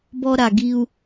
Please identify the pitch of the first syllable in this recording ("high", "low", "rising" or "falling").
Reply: high